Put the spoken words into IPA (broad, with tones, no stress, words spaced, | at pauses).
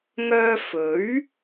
ŋœː˧fɵ˨˥ɥ